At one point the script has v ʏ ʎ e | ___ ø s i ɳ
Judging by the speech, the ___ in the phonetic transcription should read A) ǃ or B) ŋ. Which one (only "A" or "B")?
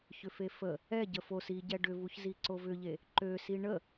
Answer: A